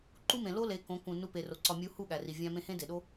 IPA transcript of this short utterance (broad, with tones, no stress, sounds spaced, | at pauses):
ǃ u˦ m ẽ˨ l o˦ l e˨˦ k õ˨˦ k ũ˨ n u˧ p e˨ r o˨ ǀ ɒ˨ mʲ u˨˦ h u˦˨ ɠ æ˨ r i˨ vʲ æ̃˧ m ẽ˧ h ẽ˦ d e˨ ɗ o˦